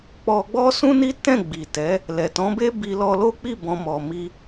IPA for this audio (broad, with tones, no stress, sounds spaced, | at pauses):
k͡p ɔ˧ ɡ͡b ɔ˦ s ũ˦ n i˦ t ɛ̃˦˨ ɡ͡b i˨ t ɛ˨˦ | l ɛ˨ t ɔ̃˨˦ b e˦ b i˧ l ɔ˧ l o˦ k͡p i˦˨ b ɔ̃˨ m ɔ˨ m i˧